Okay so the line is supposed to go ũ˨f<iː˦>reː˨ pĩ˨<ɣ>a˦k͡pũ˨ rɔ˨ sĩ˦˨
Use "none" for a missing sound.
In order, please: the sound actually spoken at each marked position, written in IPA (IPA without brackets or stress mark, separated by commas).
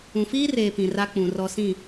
iː˦, r